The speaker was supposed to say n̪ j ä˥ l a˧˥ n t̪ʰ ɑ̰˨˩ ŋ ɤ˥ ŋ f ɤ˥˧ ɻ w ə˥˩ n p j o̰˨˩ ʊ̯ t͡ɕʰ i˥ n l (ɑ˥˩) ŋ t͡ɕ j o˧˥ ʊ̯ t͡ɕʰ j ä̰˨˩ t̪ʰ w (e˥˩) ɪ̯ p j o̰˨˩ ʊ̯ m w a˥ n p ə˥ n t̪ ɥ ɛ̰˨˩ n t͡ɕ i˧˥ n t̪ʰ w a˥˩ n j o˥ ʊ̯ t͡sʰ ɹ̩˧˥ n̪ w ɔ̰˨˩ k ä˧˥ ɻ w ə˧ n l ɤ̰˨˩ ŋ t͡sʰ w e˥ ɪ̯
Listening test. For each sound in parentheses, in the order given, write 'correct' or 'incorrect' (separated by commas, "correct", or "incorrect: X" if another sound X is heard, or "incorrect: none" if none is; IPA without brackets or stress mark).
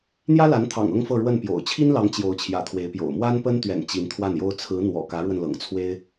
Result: incorrect: ɑ˧˥, incorrect: e˧˥